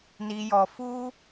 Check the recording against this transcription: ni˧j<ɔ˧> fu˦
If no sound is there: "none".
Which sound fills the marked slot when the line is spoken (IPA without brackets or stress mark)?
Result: ɔ˧